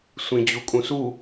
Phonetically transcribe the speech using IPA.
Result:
sʷ ĩ d͡ʑ u kʼ ũ s u

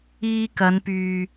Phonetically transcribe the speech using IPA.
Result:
iː˧ k ɐ˨˧ n p yː˨

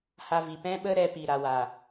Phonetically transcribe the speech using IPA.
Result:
h a˧ v i˨ p ɛ̃˦ ɓ ə˦ ɾ ɛ˧ p i˨ ɾ a˨ w a˨

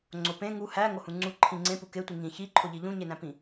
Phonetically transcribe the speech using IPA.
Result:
ŋ͡ǀ o p ẽ ŋ u h æ ŋ o h ũ ŋ͡ǀ u ǃʰ ĩ ŋ͡ǀ ẽ p u k e tʷ i ŋ ĩ ç i ǃʰ o ʎ i ʎ ũ ɲ e n æ̃ p ĩ

